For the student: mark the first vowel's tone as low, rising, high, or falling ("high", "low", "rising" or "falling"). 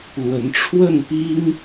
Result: rising